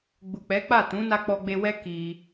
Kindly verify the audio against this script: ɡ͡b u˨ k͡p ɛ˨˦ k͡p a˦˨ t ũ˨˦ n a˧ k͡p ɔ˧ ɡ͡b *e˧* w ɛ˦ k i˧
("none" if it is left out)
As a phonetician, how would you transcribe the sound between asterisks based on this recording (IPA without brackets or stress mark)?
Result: e˧